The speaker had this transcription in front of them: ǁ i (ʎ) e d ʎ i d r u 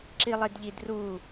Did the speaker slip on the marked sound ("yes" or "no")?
yes